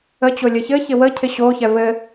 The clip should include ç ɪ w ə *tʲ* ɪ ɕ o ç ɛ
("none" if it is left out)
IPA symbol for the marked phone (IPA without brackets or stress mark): cʰ